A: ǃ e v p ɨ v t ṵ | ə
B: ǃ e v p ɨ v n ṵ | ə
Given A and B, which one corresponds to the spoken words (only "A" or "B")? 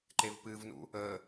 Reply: B